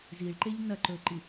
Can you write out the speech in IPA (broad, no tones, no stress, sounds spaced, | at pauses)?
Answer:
z i ɭ ǃ e ʎ n ɐ ǃ ɵ ǃ i